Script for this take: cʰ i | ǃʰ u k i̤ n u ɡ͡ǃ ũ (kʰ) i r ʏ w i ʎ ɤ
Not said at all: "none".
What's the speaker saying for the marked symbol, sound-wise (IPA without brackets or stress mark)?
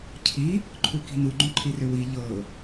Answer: ǃʰ